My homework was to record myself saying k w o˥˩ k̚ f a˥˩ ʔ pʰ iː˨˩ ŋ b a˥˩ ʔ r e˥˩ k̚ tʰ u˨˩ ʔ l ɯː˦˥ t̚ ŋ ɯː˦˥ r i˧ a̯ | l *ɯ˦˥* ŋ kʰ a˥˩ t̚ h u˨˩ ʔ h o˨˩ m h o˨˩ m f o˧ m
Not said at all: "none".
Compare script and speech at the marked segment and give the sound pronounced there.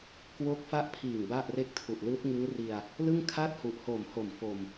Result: ɯ˥˩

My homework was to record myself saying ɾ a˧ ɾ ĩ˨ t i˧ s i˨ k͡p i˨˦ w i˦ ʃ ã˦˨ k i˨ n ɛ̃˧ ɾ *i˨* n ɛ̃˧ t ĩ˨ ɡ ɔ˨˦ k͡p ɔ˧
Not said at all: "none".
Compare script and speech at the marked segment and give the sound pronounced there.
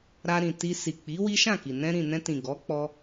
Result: ĩ˨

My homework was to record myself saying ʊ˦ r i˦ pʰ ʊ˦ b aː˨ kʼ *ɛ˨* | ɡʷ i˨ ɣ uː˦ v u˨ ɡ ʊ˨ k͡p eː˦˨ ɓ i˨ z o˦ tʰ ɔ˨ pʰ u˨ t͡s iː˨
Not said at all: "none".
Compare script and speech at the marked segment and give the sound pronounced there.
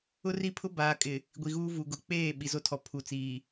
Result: ɪ˨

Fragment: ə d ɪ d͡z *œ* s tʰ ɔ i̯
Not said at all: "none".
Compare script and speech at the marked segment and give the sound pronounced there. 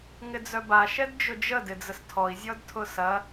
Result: ə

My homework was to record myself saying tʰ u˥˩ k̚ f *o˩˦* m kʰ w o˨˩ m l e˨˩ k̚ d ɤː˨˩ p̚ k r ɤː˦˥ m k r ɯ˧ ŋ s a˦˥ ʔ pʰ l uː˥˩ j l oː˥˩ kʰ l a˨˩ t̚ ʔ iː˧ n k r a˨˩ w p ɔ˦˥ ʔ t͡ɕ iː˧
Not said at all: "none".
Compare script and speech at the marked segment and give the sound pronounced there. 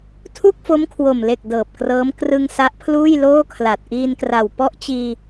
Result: o˦˥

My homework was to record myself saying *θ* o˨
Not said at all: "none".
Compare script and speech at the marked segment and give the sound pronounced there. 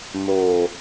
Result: n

